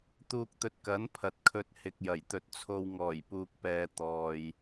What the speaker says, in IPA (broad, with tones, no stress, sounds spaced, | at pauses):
t̪ uː˧ k̚ t̪ ɵ˧ t̚ k ɐ˨˥ n pʰ ɐ˨ t̚ kʰ ɵ˧ t̚ h ɪ˨ k̚ j ɐ˨˩ j t̪ ɵ˧ t̚ t͡sʰ o˧ w ŋ ɔː˨˩ j p uː˨ k̚ p ɛː˨ t̪ ɔː˨ j